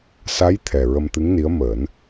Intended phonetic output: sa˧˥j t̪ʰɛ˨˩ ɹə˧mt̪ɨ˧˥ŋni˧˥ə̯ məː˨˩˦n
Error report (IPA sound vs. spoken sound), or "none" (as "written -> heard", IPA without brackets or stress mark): none